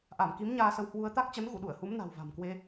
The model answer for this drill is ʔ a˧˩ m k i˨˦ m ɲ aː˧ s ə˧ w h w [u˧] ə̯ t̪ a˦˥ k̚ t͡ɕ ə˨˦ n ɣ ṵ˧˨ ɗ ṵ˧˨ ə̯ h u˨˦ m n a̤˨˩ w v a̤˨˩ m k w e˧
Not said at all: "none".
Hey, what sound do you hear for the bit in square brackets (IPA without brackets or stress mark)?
u˧